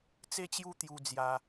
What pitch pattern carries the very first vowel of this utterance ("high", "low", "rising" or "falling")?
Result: high